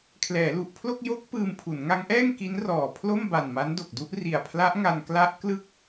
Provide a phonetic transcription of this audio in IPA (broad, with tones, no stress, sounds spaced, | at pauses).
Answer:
kʰ l ɛː˩˦ l u˨˩ ʔ pʰ l o˥˩ k̚ j o˦˥ k̚ p ɯː˧ m pʰ u˩˦ n ŋ a˦˥ ŋ ʔ ɛː˥˩ ŋ k i˦˥ n r ɔː˨˩ pʰ l o˥˩ m b a˨˩ n m a˦˥ n d o˨˩ k̚ d u˥˩ ʔ r i˨˩ a̯ pʰ l a˦˥ ʔ ŋ a˧ n k l a˦˥ ʔ k l ɯ˥˩ k̚